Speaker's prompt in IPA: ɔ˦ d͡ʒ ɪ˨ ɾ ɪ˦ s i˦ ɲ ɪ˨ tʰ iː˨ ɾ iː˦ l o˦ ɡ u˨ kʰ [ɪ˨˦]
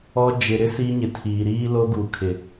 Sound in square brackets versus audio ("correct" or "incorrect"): incorrect